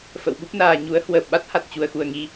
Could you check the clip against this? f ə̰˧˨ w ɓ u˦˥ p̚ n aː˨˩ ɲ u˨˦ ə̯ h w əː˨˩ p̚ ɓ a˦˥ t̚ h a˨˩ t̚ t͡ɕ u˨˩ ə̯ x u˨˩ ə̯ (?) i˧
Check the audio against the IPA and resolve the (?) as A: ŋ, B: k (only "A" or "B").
A